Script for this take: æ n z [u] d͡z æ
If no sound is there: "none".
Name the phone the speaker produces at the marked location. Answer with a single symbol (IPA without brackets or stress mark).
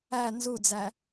u